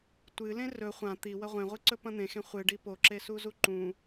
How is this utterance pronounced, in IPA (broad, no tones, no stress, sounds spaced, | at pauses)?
tʷ ɨ l ẽ r ɵ χʷ ã t̪ i w ɐ ʁʷ ẽ ʁʷ ɨ ǀ ɵ p ɐ̃ n̪ ẽ x ẽ χʷ ɨ ɖ i p o ǁ e s u z u ǃ ũ